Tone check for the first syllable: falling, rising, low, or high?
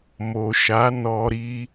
low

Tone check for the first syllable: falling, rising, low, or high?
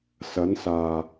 rising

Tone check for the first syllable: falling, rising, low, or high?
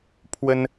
high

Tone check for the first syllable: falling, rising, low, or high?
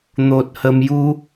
low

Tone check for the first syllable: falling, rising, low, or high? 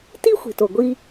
high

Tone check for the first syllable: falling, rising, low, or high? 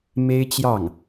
high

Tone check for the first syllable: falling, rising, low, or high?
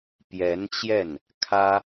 rising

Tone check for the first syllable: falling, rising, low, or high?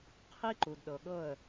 high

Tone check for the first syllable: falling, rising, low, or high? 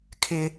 high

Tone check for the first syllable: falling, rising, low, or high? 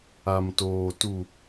low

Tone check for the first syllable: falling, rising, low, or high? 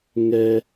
high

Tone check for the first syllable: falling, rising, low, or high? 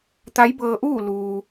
rising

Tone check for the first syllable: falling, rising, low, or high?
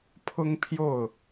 high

